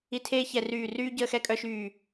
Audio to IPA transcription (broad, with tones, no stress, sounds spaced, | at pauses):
i˧˩ tʰ eː˦ ç ɛ˧˩ r yː˧˩ r yː˦ ɟ əː˦ x ɛ˦ kʼ œ˦ ʃ yː˧˩